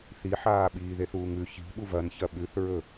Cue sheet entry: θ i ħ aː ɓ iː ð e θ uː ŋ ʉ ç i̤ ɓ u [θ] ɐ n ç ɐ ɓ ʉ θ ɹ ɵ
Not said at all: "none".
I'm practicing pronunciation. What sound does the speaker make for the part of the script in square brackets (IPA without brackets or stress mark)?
v